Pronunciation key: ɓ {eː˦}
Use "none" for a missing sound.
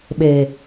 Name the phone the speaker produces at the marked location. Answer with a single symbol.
eː˨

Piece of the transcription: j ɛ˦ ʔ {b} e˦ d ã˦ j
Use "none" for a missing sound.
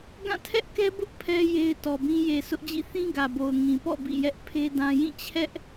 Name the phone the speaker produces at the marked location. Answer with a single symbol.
pʰ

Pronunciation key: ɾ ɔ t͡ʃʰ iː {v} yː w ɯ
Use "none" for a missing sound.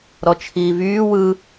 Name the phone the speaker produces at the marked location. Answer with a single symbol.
v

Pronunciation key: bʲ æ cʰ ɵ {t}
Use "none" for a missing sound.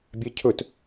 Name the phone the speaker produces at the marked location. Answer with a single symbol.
t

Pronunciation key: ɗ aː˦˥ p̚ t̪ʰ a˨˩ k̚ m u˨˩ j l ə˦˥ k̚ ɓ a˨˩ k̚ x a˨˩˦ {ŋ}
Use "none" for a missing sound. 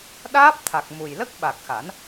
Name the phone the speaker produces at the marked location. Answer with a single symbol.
n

